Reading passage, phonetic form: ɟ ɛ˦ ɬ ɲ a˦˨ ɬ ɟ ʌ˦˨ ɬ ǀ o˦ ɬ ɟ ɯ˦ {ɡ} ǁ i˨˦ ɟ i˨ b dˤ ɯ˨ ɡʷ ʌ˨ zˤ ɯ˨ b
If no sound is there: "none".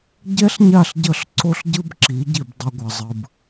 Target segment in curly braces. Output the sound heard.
b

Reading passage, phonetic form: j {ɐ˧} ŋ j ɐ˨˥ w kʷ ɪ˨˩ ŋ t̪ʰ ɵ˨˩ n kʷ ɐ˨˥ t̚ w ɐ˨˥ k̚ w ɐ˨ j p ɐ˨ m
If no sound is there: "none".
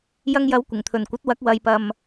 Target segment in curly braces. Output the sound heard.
ɐ˧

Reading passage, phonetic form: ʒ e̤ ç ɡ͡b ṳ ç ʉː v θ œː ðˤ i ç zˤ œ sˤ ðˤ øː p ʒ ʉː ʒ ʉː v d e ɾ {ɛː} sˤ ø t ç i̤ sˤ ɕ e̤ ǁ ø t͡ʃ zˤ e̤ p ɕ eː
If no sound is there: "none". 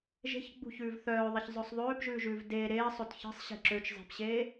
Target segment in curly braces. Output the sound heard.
eː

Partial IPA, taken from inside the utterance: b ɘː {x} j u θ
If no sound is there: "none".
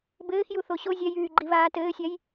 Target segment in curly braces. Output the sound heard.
x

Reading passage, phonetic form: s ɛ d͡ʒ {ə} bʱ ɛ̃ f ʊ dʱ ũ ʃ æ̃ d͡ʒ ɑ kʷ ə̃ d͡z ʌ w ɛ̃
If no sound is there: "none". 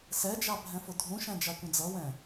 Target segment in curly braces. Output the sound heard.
ɑ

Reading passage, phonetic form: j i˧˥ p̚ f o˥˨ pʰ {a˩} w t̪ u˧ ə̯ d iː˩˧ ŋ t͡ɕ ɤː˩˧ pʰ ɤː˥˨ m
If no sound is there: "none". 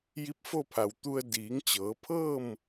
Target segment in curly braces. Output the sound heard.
a˩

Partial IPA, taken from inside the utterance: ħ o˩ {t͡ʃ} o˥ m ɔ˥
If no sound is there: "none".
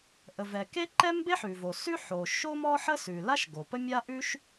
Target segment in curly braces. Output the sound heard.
ʃ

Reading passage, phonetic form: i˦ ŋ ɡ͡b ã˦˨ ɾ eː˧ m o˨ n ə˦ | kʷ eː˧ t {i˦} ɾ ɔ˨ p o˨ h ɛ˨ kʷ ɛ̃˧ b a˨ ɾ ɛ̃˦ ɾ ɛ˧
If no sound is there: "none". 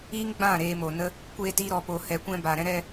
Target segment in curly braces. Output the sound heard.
i˧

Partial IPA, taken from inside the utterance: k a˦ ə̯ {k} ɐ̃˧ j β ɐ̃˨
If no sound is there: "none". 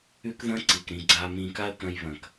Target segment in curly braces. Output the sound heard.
k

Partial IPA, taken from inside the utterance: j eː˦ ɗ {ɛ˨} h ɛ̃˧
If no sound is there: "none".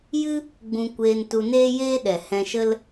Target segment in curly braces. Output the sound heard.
ɛ˨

